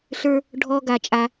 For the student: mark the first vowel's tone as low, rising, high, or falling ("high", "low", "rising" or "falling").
high